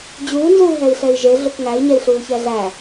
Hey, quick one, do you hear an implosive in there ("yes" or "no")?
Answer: no